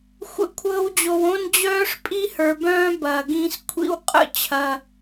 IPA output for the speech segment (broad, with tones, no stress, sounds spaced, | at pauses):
xʷ ə̰˧ kʷʰ ɤː˧ w d͡ʑ o˨ w õ˦ n d͡ʑ œː˦ ʂ pʼ i˦ h ə˞˨ b œ̃ː˦ b ɐː˨ ɡ ĩː˧ s kʷʰ ḭ˧ w qʼ ə̰˦˨ t͡ɕʰ ɐ˧